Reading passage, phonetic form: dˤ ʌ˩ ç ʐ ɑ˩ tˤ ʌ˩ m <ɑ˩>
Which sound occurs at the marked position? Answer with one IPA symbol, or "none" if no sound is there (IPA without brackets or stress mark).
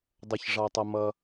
ʌ˩